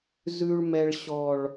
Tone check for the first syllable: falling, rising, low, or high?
high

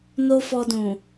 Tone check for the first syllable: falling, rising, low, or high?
high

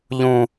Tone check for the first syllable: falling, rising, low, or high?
low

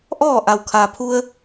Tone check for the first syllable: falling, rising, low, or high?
falling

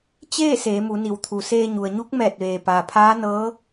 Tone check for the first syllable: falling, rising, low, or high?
falling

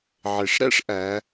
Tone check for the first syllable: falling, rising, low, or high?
low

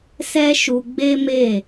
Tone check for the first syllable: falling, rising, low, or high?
high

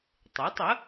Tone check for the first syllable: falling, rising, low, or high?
rising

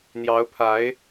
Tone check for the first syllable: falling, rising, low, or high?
rising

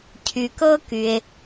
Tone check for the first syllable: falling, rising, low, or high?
low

